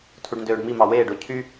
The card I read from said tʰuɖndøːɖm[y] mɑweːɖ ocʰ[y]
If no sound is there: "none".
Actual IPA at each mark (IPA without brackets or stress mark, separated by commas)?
i, y